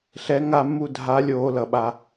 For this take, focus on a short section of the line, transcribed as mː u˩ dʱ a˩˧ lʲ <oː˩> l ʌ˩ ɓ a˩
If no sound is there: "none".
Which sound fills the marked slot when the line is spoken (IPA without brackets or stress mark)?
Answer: oː˩